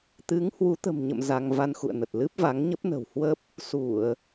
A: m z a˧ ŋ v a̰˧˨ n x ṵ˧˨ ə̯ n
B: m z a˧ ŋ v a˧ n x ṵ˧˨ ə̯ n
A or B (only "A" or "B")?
B